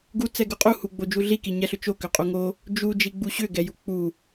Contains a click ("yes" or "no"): no